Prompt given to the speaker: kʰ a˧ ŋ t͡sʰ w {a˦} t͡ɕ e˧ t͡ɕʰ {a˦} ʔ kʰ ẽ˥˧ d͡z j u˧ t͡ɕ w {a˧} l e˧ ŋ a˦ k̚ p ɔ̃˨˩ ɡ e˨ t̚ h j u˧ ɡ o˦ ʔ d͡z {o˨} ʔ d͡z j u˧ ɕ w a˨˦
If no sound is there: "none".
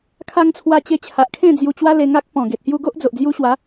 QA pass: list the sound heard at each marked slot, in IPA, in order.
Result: a˧, a˨, a˦, o˨

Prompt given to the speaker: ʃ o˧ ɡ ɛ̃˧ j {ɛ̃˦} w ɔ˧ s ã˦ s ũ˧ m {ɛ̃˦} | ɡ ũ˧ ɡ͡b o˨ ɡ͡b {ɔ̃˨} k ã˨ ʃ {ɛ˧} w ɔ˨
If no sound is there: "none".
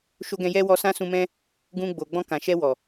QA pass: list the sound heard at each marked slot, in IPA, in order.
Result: ɛ˦, ɛ̃˦, ɔ̃˧, ɛ˧

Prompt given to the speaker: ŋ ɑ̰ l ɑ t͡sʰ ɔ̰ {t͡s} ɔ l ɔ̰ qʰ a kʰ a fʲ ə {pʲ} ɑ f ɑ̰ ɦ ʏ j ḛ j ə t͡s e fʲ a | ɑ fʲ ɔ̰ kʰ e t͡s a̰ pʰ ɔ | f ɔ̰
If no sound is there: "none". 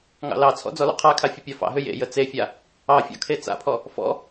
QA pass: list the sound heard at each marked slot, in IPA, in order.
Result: d͡z, pʲ

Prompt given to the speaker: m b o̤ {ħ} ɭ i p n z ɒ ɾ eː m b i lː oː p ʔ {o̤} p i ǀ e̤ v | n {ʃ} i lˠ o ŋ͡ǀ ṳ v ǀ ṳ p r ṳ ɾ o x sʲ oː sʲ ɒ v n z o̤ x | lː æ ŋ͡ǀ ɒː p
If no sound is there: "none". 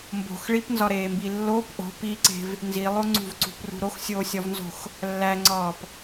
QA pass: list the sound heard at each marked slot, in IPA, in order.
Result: x, o̤, z

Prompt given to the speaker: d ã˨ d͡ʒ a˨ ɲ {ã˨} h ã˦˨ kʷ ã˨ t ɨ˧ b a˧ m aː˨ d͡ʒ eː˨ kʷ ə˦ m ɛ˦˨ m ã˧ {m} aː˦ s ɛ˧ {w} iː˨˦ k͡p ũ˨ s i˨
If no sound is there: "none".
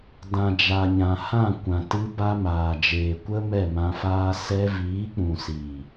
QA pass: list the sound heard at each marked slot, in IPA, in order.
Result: ã˨, f, v

